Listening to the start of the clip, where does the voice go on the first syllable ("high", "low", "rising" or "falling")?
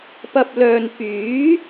low